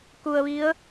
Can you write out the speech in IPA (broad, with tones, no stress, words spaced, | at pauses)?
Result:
ku˧ə̯ʋi˧˥ə̯